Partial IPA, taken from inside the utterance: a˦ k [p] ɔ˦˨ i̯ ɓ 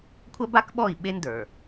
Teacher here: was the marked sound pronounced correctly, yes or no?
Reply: no